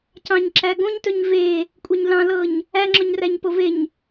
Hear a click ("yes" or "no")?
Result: yes